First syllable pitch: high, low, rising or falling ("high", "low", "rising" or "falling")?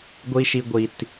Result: high